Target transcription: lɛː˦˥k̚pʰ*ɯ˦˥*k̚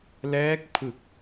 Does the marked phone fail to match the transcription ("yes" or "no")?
yes